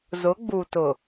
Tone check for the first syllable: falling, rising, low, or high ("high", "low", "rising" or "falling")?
rising